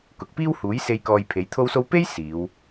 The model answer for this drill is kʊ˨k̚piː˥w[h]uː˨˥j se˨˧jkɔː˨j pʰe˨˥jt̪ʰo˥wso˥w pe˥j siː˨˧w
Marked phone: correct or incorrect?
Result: correct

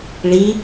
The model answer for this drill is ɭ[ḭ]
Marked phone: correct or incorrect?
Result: incorrect: i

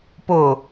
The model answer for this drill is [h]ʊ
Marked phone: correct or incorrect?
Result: incorrect: p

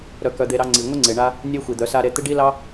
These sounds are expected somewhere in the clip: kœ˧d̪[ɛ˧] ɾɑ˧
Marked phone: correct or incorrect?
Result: incorrect: e˧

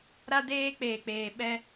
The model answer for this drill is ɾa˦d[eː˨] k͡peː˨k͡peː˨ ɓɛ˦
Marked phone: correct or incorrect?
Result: incorrect: eː˦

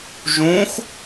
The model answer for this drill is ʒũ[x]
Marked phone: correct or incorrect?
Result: correct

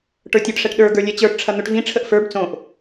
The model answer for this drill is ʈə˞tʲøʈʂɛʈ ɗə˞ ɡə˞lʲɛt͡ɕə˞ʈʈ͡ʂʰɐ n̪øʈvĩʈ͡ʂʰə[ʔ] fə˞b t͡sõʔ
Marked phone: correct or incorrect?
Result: correct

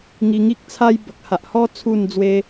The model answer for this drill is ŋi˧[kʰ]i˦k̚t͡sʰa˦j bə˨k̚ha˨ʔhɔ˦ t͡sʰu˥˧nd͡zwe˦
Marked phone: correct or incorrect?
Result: incorrect: ŋ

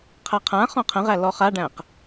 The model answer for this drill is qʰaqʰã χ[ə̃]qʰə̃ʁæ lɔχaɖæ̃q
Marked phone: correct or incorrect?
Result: incorrect: ɔ̃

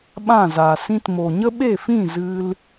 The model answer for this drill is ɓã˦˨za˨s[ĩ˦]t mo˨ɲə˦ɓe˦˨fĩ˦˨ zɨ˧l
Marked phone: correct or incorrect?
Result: correct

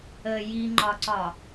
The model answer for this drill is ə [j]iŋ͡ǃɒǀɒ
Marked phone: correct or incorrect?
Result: correct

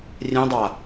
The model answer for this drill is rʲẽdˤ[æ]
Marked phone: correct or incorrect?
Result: incorrect: a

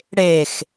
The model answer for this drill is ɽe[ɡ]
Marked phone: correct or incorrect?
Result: incorrect: x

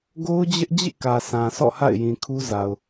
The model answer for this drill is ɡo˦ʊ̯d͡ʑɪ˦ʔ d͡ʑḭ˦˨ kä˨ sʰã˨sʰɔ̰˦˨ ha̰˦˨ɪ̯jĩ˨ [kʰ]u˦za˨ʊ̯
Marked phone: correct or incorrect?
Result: correct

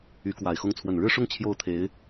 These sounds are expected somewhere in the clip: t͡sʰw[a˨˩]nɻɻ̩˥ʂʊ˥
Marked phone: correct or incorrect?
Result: incorrect: ə˨˩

